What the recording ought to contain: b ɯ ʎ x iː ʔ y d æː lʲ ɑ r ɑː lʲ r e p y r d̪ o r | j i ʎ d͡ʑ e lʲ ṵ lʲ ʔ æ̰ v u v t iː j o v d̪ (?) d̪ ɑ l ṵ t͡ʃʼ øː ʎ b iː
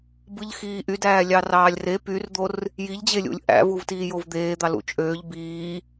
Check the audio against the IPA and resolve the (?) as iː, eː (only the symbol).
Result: eː